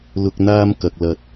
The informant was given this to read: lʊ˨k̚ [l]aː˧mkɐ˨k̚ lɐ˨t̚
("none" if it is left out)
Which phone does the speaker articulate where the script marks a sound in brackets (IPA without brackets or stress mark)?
n̪